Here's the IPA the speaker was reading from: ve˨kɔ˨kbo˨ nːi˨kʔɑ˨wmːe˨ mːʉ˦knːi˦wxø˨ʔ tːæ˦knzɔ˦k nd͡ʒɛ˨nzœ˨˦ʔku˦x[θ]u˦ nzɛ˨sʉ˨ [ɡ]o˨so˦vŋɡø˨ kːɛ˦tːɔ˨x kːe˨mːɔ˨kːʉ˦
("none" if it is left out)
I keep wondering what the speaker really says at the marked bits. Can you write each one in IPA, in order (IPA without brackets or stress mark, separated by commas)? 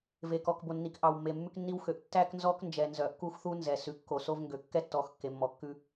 θ, kː